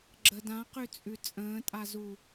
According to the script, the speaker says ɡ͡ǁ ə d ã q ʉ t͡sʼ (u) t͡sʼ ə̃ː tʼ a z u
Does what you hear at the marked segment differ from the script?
yes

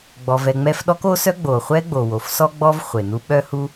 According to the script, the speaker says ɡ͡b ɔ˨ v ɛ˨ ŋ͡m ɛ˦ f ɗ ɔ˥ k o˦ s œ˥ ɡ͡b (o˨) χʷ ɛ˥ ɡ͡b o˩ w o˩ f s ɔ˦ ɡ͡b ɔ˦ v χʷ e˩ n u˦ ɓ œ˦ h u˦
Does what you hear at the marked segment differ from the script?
yes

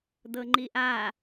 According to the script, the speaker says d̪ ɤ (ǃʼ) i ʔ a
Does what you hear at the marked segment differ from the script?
yes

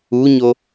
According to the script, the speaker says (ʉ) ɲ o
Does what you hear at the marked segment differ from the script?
yes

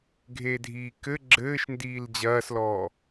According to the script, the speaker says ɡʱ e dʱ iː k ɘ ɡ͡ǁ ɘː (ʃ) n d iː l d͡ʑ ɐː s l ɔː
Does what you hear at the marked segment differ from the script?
no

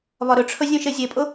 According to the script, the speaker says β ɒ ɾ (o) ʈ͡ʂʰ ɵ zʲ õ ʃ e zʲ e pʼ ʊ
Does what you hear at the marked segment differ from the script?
yes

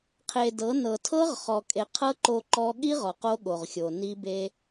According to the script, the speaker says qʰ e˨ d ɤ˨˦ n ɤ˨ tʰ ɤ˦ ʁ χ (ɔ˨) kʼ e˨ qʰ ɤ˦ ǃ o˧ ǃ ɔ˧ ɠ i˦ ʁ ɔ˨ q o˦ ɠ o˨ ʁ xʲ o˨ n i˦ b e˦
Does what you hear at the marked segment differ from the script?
no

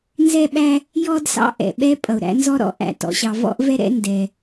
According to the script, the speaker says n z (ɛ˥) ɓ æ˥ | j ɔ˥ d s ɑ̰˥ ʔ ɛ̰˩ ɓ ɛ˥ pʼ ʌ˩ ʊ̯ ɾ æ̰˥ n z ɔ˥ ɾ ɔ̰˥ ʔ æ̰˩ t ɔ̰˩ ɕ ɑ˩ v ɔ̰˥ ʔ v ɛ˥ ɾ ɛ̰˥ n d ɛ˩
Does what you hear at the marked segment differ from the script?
no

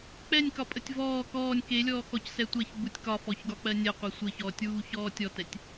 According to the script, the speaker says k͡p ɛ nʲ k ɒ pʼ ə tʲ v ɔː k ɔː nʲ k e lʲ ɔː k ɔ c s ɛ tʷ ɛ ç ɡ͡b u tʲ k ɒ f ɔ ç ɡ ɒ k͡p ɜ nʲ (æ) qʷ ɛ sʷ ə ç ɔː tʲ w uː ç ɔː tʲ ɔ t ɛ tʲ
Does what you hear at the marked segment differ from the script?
yes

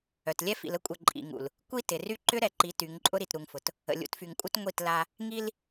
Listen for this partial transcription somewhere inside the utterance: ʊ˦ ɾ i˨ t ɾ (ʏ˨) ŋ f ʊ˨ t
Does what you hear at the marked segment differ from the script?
yes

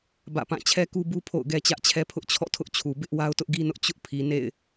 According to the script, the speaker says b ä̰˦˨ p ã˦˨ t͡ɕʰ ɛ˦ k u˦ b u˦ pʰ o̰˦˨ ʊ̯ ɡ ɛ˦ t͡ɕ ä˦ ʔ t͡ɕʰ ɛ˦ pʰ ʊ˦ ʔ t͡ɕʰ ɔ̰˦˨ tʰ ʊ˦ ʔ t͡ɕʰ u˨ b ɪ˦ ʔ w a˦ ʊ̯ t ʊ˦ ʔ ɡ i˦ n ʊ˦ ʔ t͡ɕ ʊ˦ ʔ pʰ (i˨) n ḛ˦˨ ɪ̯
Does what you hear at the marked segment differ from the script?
no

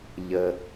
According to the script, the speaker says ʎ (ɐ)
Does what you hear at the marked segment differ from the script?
yes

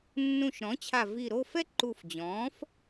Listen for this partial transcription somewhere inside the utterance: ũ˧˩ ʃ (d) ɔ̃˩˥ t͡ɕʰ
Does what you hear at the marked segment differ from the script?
yes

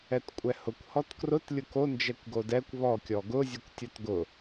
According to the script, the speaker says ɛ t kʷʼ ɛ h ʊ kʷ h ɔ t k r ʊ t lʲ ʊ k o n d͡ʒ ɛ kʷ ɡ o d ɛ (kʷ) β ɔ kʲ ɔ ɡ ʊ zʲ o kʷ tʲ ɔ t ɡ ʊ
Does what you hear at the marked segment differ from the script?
no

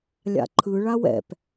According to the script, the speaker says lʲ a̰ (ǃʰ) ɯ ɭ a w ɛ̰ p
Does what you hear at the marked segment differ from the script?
no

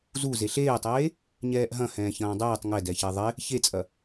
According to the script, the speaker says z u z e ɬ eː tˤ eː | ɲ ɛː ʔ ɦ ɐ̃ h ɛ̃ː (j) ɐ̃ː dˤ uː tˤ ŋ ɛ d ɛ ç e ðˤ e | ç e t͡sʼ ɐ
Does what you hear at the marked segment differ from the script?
yes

